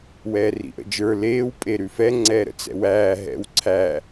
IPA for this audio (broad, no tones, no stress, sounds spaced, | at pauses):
w ɛː r ḭ ʔ ə̰ d͡ʒ ə˞ l eː w pʼ e ɾ ʉ f ɛ ŋ͡ǀ ɛː ɾ ə̰ t͡s ɛ̰ w æː ɦ ɛ̰ w ǀʰ æ